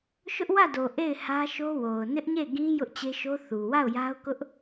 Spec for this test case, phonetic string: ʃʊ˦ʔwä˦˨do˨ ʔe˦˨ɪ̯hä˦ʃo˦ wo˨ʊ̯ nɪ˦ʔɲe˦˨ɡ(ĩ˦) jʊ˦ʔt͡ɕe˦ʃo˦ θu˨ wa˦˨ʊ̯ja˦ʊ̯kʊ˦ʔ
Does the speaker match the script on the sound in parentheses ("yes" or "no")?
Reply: yes